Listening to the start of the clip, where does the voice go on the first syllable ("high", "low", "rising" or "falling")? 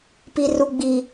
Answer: high